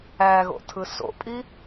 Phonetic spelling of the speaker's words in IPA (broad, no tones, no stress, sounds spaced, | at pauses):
æ ɣ o̰ tʰ ɯ s o̰ pʼ i